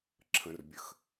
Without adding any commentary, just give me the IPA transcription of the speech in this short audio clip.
ǁʰə̃˩rbʲə˩x

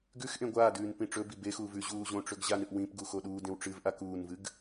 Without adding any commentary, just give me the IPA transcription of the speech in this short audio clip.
ɡʉxʔẽ ɡʷaːdʉːn pĩʈ͡ʂɵbi bexuːv ʉ ʑuːʑõʈ͡ʂɵɡ ʑanɨʔ wĩp ɡuxoɗuːdẽw ʈ͡ʂɨvʔa kuːnvɨɡ

